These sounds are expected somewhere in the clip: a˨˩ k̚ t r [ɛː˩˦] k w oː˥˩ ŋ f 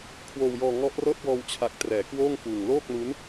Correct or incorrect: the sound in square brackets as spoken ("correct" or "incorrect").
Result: correct